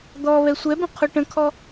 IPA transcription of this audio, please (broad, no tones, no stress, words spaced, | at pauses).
d̪ɔ βɛsʷɛbə̃ qʰoʈə̃kʰɔ